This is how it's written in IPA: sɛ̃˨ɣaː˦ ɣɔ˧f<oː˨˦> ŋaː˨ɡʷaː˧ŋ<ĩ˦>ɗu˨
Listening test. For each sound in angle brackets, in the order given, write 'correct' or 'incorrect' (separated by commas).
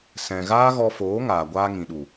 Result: correct, incorrect